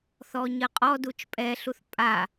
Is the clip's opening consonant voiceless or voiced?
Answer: voiceless